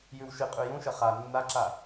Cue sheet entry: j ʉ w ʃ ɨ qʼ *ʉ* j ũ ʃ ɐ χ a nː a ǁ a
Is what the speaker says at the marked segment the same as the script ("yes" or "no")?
yes